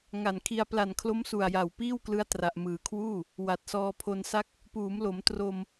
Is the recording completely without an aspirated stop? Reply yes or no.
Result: no